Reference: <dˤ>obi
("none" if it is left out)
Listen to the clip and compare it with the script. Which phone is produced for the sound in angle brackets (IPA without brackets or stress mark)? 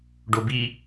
ɖ